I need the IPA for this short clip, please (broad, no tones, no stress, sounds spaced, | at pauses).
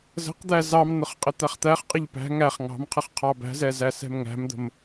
z ə̤ q d̪ æ z ɑ m n̪ ʊ χ qʼ ɪ t̪ æ χ t̪ æ χ qʼ ɪ ʎ p æ̤ ŋ æ χ ŋ ɑ̤ m qʰ ə χ qʰ ɑ b æ̤ z ɛ z æ s ɛ̤ m ŋ æ̤ m d̪ ə̤ m